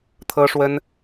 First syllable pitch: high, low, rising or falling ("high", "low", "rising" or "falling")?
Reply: high